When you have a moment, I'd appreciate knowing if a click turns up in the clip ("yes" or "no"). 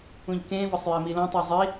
no